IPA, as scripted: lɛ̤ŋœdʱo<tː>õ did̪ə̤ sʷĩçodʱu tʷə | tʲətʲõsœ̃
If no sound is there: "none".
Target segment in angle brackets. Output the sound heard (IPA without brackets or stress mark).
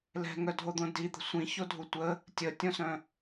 d̪